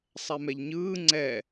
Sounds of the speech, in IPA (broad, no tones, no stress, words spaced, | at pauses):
sˤɛmɛʎɲɯː ŋ͡ǀɛ